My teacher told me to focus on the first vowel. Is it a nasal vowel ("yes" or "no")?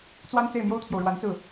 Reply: no